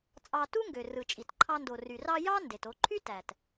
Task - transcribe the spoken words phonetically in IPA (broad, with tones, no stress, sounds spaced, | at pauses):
t͡sʼ ɑ˧ t u˥ ŋ ɡ ø˩ r ɯ˩ t͡ʃʼ i˩ t ǃʰ ɑ˧ n d o˩ r y˩ r ɑ˧ j ɑ˥ n d e˩ t o˧ ǃʰ y˥ t æ˩ t